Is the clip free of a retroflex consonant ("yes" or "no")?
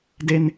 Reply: yes